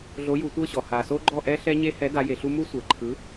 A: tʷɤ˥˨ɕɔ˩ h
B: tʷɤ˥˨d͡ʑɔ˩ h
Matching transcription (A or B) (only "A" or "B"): A